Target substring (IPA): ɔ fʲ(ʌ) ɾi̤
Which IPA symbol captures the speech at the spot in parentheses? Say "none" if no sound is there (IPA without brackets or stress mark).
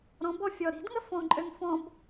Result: ɔ